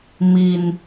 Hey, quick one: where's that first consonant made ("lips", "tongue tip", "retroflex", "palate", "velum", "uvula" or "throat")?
lips